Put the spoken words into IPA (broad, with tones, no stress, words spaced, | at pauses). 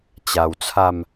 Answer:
t͡ɕa˨˩wt͡sʰa˥˧m